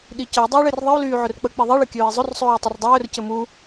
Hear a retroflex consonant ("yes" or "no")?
yes